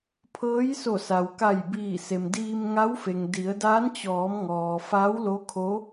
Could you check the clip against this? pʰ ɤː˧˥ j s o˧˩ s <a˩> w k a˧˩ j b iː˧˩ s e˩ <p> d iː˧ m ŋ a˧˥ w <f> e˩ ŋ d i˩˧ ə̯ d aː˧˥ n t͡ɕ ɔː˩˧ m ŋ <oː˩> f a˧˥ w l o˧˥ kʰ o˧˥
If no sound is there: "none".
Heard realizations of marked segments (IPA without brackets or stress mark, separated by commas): a˩, m, f, ɔː˩